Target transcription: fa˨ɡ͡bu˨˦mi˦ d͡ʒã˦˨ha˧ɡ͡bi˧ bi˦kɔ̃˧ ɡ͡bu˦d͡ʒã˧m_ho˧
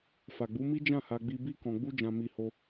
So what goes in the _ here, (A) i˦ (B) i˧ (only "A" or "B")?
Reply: B